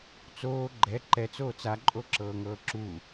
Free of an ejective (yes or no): no